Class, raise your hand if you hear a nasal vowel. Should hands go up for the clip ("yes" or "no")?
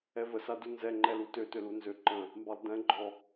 yes